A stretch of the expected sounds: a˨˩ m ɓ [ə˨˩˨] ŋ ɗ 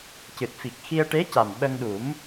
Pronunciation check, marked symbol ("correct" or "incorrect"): incorrect